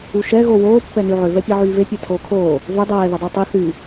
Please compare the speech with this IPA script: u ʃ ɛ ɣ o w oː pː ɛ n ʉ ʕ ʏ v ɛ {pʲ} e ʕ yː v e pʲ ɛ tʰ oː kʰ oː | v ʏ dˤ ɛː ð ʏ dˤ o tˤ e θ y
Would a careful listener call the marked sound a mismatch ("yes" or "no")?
no